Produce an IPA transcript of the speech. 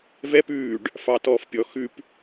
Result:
vɛp ʉːɖ | fɑtɔːfpʲɔ xʉp

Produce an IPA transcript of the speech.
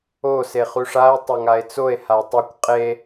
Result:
o seχuʂae̯ tˤɐŋae̯t͡soe̯ hatˤukʷ qʼe

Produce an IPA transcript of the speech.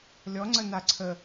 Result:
lʲɔŋ͡ǀə naǀʰə

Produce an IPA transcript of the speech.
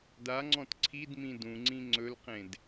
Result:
daŋ͡ǀɔ̃t ǀʰidmĩ dũŋ͡ǀĩ ŋ͡ǀɵlqẽd

